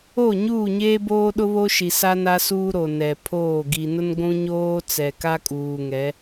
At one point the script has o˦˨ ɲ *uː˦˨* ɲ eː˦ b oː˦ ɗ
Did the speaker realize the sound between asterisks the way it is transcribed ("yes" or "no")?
yes